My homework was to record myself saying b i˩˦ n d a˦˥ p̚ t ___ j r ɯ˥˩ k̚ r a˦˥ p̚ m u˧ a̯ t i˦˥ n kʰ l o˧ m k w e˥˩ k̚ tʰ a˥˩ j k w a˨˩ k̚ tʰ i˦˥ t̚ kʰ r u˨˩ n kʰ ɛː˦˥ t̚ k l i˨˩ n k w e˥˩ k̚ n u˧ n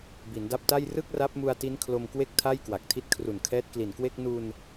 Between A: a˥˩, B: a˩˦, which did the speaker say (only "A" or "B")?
A